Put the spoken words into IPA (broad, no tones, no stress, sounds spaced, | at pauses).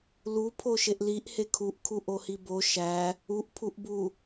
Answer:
l u pʰ o ʃ e ʔ l i ʔ h e kʰ u ʔ kʰ u ʔ o h i b o ʃ æ | u ʔ pʰ u ʔ b u